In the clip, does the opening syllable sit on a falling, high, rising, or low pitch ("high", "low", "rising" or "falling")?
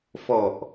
low